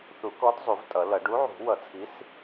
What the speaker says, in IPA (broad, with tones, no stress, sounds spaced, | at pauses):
θ u˨˩˦ k ɔ˨˥ d zˤ u˨˩˦ v tʼ ʌ˨˩˦ l ʌ˨˩˦ ɖ u˨˥ ʕ ṳ˨˩˦ w ʌ˨˩˦ t͡sʰ i˨˥ s